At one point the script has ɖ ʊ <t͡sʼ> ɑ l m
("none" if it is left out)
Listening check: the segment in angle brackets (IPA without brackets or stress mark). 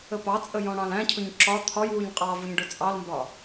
t͡sʼ